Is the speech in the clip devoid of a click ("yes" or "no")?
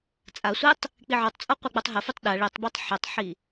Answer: yes